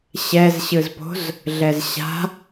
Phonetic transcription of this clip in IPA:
ɕ ɛ z ɕ ɯ z p o̤ z | ɮ ɛ z ɕ a̤

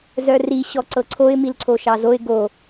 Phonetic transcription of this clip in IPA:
z œ r i ɕ ɔ ǀ ɤ ǀʰ o ɪ̯ m i l ǀʰ o ʃ ɑ z o ɪ̯ ɡ o

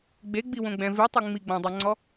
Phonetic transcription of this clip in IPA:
ɡ͡b e ɡ͡b i w õ ɡ͡b ɛ̃ v i tˤ ɯ ŋ͡m i ɡ͡b ɔ̃ dˤ a ŋ͡ǀ ɔ

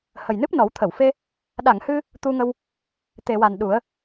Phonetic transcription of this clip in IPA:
h ə˨˩ j n ɨ˦˥ p̚ n ɔ˨˩˦ w t̪ʰ ə˨˩˨ w f e˧ | ɗ a˨˩˨ ŋ h ɨ˧ | t̪ u˧ ŋ ə˧ w | t̪ e˨˩˨ w a˨˩ n ɗ u˨˩˦ ə̯

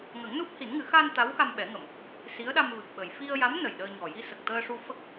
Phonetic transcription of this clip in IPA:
ŋ ə˨˩˦ ŋ n u˦˥ p̚ h i˨˩˦ n ŋ ɨ˨˩˦ x a˧ n t̪ a˧˥ w x a˧ m ɓ ɛ˨˩˦ ŋ ə˨˩˨ m | s i˧˥ ə̯ ɗ a˧ m v ɨ˨˩ k̚ ɓ ə˨˩ j f i˧ ə̯ j a˧˥ m n ə˨˩ j ɗ əː˧ ɲ ɔ˨˩ j i˧ s ə˨˩ k̚ t̪ əː˧ ʂ u˧ f ə˦˥ k̚

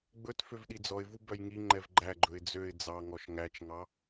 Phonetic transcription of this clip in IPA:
ɡ͡b ɵ t f ø v ɗ i d͡z ɔ ɪ̯ v u b œ j ŋ i ŋ͡ǃ ɛ v ɡ͡ǃ æ ɡ͡ǃ ɵ ɪ̯ d͡z ø ɪ̯ d͡z ɑ ŋ ɔ ʃ ŋ æ t͡ʃ ŋ ɑ

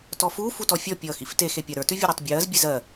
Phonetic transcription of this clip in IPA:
t ɔ f uː f u t ɔ fʲ ɔ pʲ ʌː x ḭ f t e x e pʲ a ɾ ə˞ t ʉ vʲ u ɾ ɜ tˤ bʲ ɜː z bʲ e z ɜ

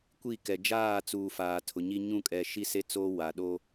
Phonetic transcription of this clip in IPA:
kʷ i˦˨ k ɛ˨ d͡ʒ aː˦˨ t͡s uː˨ f aː˨ tʰ ʊ˨ ɲ i˦ ɲ ũ˦˨ kʼ ɛ˨ ʃ i˦ s e˦ t͡s oː˦ w a˨ ɗ o˦

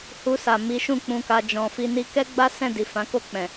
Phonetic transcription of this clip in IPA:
h u˧ s a˨ m i˨˦ ʃ ũ˦˨ k͡p ũ˧ k a˧ d͡ʒ ɔ̃˨ f i˧ n i˧ k ɛ˦ ɡ͡b a˦ s ɛ̃˦˨ d i˨ f ã˨˦ k o˦˨ k͡p ɛ̃˨

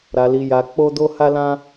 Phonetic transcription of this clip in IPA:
ɾ a˧ l i˧ j a˧ k͡p o˦ d o˦ h a˦ l ã˦

